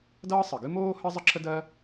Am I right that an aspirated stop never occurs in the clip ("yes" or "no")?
no